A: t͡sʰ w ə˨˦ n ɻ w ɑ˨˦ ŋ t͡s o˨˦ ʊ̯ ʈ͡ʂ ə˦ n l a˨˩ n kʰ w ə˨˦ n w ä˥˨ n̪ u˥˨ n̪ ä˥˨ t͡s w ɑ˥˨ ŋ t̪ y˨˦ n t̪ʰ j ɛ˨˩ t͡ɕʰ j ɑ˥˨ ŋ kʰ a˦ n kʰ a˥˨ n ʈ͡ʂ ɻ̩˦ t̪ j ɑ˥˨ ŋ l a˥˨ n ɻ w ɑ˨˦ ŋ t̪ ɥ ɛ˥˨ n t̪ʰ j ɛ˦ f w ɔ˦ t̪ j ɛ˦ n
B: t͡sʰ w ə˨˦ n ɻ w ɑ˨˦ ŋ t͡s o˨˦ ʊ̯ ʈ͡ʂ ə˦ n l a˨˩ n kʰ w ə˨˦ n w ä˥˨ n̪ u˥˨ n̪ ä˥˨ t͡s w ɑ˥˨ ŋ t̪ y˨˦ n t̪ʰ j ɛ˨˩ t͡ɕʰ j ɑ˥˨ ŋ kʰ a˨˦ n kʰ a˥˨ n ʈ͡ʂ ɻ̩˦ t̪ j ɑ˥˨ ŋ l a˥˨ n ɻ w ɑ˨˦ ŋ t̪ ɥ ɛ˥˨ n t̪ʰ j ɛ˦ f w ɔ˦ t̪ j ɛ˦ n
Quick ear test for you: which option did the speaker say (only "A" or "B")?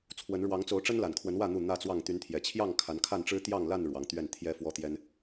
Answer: B